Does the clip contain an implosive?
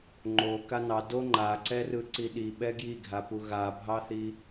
yes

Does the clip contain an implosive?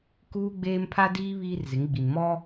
no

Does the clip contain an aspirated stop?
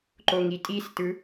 no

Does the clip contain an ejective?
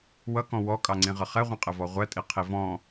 yes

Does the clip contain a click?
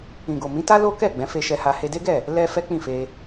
no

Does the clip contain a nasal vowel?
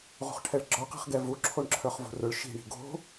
no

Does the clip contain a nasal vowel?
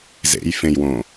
yes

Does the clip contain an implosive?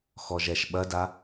yes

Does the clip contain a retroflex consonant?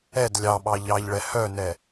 yes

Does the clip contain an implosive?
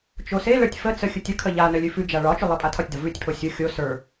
no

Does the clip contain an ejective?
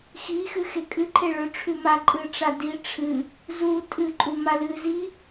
yes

